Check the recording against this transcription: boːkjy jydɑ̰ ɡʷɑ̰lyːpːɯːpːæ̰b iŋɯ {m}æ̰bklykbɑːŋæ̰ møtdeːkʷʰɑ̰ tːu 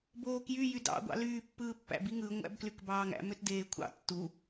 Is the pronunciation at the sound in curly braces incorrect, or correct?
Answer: incorrect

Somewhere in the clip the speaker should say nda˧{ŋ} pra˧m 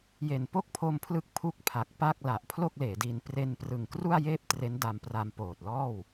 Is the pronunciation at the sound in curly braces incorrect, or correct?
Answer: incorrect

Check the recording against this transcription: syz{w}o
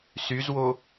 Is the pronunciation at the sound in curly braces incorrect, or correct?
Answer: correct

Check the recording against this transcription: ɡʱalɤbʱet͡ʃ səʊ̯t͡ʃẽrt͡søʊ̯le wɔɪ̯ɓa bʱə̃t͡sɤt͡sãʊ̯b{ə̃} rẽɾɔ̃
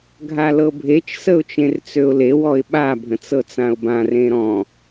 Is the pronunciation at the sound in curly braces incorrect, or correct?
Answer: incorrect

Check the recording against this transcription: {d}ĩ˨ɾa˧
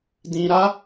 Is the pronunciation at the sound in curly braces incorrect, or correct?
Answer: correct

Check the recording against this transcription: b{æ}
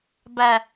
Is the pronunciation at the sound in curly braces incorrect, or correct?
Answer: correct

